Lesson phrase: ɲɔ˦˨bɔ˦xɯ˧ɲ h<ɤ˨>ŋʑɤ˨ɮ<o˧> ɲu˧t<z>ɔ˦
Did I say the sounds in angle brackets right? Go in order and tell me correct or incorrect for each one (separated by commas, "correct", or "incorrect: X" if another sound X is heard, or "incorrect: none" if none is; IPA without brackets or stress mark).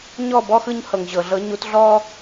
correct, incorrect: ɤ˧, incorrect: ɮ